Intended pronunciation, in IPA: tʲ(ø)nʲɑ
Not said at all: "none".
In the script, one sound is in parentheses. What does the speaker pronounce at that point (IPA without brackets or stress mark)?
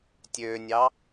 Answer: ø